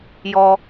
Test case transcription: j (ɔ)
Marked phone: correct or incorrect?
correct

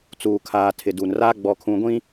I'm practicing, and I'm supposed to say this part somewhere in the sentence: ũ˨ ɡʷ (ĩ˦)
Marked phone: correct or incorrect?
correct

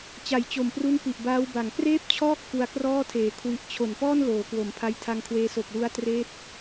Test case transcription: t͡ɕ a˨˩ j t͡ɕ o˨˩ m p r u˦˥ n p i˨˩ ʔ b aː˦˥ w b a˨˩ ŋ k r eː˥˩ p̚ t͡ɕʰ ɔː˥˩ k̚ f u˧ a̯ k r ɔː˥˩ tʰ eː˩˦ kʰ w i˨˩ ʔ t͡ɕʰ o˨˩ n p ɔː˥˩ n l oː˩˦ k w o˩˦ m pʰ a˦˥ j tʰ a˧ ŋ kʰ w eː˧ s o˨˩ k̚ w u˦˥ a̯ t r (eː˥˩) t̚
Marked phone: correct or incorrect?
correct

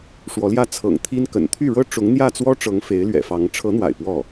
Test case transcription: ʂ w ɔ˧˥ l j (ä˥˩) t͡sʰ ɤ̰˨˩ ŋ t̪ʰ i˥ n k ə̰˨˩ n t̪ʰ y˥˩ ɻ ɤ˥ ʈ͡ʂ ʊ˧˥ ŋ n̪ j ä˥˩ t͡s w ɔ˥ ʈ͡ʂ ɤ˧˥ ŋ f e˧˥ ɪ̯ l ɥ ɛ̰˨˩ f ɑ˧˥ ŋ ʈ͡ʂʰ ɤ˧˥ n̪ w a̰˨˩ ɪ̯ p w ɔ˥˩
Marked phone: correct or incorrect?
correct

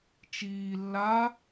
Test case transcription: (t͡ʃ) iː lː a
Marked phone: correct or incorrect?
correct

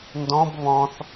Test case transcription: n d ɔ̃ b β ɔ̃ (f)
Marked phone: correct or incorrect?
incorrect: θ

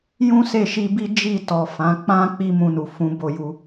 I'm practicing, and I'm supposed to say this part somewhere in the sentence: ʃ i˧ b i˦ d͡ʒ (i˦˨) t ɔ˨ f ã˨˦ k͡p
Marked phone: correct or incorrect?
correct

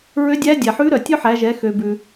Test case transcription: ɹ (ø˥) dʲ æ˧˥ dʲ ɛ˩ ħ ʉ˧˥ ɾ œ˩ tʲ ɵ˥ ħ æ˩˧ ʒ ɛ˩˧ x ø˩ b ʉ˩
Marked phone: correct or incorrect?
incorrect: ø˧˥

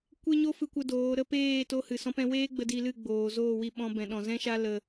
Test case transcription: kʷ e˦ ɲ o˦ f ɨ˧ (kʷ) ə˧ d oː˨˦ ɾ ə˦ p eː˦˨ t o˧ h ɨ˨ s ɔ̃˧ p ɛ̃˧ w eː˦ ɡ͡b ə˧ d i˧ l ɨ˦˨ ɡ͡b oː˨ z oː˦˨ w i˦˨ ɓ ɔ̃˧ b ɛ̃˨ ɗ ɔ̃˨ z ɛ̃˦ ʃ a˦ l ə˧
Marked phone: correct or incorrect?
correct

